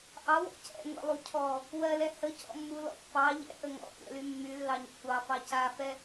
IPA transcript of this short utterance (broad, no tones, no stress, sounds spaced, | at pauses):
ʔ ɑ w ɔ̰ c ɛ̰ ŋʷ ɛ̰ lˠ u cʰ ɔ | w ɜ l ɛ h ə c ɔ̰ mː u l ɔ̰ pː ɑ ʎ ɛ̰ ʔ ə ŋ ɔ̰ kʷ ɛ̰ l y mː y lː ɑ ɲ ə̰ kʷ ɑ f ɑ c a f ɛ